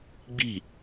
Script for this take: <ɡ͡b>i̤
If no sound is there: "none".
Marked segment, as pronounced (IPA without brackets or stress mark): ɡ͡b